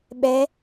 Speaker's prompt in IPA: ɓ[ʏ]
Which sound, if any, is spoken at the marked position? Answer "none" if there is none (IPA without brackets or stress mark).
ɛ